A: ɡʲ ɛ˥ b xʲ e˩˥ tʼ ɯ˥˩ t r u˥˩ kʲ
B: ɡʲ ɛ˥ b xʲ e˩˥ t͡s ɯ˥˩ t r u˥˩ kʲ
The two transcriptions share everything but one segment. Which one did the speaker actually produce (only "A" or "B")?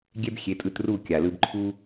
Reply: A